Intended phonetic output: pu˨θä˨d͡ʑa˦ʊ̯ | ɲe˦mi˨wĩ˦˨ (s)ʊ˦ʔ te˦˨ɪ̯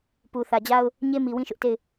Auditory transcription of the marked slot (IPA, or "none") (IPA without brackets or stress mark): ʃ